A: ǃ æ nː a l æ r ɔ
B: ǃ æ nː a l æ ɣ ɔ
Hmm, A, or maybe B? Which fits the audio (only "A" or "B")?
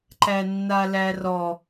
A